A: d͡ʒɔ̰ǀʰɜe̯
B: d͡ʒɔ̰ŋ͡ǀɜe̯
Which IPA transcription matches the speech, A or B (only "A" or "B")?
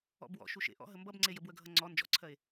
A